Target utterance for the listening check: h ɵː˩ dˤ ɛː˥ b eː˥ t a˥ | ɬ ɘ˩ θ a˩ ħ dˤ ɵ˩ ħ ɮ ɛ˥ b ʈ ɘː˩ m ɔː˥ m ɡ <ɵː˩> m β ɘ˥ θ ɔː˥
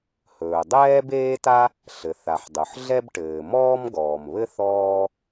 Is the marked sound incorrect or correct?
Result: incorrect